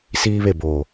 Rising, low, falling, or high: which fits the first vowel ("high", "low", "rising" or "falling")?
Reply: high